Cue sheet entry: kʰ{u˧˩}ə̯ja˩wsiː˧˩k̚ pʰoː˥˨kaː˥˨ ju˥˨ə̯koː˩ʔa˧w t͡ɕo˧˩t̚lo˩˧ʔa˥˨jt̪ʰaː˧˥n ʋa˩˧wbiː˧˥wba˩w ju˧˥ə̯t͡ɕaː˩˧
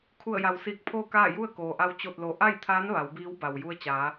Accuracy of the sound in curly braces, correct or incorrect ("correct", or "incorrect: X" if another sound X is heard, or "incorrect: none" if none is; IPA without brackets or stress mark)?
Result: correct